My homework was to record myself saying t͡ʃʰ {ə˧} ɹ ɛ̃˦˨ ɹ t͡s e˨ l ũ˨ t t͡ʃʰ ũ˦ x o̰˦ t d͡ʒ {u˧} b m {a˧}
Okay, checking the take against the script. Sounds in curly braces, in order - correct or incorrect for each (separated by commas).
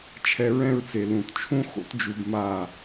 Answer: incorrect, correct, incorrect